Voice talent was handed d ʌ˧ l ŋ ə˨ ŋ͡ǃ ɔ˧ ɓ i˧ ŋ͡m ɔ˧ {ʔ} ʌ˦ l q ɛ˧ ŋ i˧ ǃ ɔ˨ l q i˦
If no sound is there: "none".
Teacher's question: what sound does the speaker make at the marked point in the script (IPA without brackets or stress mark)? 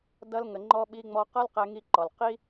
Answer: q